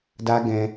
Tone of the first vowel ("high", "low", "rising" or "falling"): high